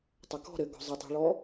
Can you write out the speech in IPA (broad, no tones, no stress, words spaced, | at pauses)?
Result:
tˤʏkɔ̤ ɾɘ ɡɔ̤zˤə tˤi̤ɭɔ